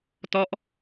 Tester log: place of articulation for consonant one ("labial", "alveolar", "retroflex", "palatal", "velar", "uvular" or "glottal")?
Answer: alveolar